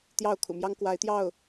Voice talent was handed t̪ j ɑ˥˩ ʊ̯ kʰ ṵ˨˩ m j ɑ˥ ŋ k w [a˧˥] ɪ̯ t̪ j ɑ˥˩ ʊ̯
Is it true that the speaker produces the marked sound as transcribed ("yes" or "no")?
yes